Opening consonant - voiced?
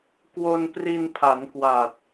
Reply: no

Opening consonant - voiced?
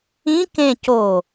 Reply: no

